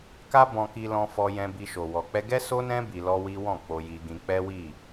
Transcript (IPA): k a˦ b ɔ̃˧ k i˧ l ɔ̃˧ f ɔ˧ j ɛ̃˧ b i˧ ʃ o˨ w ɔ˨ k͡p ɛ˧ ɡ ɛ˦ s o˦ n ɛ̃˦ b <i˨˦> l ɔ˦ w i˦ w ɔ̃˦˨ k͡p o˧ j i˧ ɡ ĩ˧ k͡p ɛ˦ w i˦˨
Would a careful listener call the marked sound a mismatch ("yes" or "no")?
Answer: yes